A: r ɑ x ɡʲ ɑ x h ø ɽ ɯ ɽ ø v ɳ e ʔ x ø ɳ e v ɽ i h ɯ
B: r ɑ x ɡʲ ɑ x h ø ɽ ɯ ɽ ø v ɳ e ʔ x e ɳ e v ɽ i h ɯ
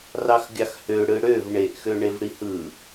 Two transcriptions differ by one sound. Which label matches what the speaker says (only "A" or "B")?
A